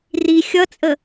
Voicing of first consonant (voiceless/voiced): voiced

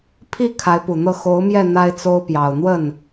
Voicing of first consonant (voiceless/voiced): voiceless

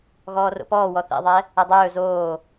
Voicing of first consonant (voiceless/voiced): voiced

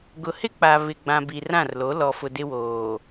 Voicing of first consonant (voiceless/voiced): voiced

